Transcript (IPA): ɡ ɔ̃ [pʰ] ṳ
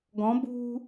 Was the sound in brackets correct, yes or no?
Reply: no